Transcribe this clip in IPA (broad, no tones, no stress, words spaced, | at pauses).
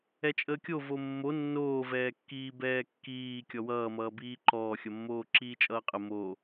ɛt͡ʃʼəːkʲo vomːo nːoːvɛːkːiː bɛːkːiː kʲɔwʌːmʌːbiː ǃɔːxʲʌmːoː ǁiːt͡ʃʼʌːqʼə mo